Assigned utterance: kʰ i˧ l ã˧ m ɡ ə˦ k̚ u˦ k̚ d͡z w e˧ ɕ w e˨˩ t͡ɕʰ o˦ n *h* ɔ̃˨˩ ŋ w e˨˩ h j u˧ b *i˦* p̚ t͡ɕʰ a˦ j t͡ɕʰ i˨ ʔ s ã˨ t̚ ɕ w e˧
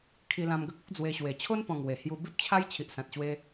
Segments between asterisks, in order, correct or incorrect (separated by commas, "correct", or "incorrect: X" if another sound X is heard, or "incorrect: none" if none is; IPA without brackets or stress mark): incorrect: p, correct